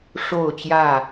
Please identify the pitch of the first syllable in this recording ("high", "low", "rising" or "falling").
falling